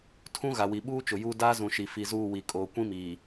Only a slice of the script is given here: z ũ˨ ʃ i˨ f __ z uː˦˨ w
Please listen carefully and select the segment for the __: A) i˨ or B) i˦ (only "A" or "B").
A